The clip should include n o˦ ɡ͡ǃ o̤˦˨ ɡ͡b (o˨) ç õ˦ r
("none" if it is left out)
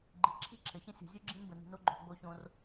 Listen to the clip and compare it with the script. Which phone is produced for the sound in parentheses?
o˦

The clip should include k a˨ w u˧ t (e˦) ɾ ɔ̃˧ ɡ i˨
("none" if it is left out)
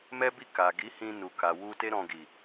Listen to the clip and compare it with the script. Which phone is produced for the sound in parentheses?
e˦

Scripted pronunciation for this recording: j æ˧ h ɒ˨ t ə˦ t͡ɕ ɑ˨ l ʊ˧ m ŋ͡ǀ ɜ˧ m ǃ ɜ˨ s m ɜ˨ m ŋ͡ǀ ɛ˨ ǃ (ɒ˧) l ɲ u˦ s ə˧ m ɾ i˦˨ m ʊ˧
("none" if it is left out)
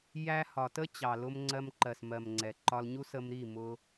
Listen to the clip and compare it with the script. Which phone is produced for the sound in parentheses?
ɒ˧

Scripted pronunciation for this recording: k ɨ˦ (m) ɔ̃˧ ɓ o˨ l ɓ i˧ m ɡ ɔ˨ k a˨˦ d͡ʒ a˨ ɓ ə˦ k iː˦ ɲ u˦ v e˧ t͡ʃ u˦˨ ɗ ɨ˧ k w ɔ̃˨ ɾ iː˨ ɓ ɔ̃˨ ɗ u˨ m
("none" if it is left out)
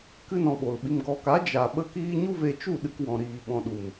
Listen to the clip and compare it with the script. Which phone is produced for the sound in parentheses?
n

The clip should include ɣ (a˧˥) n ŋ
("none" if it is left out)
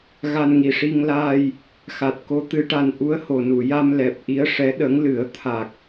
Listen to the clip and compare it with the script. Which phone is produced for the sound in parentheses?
a˧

